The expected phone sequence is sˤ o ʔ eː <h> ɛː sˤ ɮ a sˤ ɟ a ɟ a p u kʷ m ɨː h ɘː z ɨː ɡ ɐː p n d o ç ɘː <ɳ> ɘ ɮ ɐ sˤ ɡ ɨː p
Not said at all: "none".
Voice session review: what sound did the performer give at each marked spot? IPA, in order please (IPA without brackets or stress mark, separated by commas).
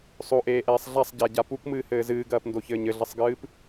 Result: ʔ, ɲ